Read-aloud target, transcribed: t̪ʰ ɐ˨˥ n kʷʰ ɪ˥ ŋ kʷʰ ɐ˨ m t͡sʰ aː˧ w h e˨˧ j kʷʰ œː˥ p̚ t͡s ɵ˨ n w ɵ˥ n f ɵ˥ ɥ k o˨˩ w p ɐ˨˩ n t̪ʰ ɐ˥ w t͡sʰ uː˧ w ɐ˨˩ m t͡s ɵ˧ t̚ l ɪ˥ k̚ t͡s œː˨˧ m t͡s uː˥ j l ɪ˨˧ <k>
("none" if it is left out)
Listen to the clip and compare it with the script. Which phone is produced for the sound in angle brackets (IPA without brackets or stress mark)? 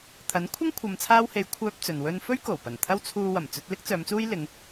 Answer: ŋ